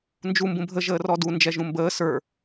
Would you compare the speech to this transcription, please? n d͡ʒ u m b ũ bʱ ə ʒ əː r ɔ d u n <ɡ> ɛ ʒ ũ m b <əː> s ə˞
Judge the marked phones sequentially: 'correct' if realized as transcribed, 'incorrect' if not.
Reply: incorrect, correct

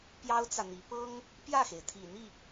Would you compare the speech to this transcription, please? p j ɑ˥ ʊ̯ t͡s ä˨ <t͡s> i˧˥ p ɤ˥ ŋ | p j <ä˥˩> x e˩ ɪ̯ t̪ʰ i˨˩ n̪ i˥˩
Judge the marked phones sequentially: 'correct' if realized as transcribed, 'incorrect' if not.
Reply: incorrect, correct

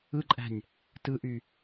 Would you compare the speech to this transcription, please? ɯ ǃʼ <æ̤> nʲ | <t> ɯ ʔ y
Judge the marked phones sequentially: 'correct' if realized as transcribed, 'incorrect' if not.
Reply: correct, correct

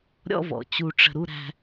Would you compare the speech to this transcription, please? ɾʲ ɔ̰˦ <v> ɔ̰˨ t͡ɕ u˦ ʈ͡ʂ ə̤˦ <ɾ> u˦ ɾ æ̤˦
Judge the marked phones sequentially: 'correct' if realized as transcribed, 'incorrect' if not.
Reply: correct, correct

